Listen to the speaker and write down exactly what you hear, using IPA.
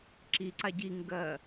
ǁiǀa ɟi ŋɡɜ

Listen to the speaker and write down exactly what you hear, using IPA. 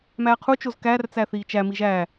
mæːqʰut͡ʃoz kært͡sæ θiːt͡ʃæmi ʒæ

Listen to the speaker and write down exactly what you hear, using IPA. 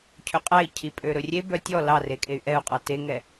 cʰøqʼæi̯ cʰipʼøɾɵrʲe bœtʲɔ lɑrekʼey̯ ʔɛu̯qʼɑ teŋɛ

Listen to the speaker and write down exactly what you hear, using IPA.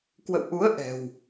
kwə̰˧˨wʔu˨˦ə̯ ʔɛ̤˨˩w

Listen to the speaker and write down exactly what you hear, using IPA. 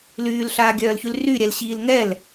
lyːlɬaːɡʲœːlçyl ryɾʲɛl ɕiːlŋɛl

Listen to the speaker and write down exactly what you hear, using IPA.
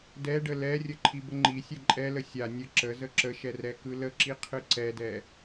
dɛɖə lɛrʲə ǃʰibəŋ͡ǃisʲɛ ǃʼɛlə sʲa nʲə ǁə zəǁəʃɛ rɛkɯləǁi qʰɯǀɛdɛ

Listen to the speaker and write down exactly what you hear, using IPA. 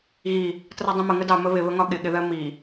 ɣi | trɒdˤĩmə ŋədɑ məβɪβəŋɒ ɠɪɠɪðɜ mi

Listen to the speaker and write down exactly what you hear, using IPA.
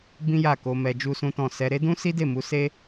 bĩ˦ja˦˨ ko˧mɛ˧ d͡ʒu˦sũ˦tɔ̃˦˨ sɛ˧ɾe˦dũ˦ si˦de˦˨mu˨˦ se˦

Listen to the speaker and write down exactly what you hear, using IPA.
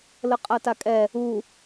ləqʼatakʼɛ | u

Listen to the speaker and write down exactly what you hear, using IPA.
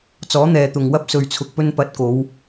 t͡sɔː˨˥n̪ɛː˨t̪ʊ˨ŋwɐ˥p̚ sɵ˧ɥt͡sʰʊ˧k̚pɵ˥n pɐ˨˥t̚ko˨˧w

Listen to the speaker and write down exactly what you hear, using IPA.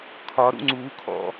kʰɒɾṵ ŋ͡ǀuːkʰɔ̰

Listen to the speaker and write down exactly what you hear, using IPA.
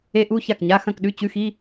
e˦˥ʔu˧˥˧ ça˥˩kɲa˧˥˧xɐ̃˥˧kɗʉ˧˥˧ t͡ɕʉ˧˥˧xi˧˥˧

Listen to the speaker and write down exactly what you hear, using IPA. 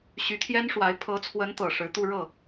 ɕy˧˥t̪ʰjɛ˥nʂwa˧˥ɪ̯ pʰɤ˧˥t͡sʰwə˧˥nt̪ɤ˨˩ ʂɻ̩˧˥t̪u˥˧ ɻɤ˥˩

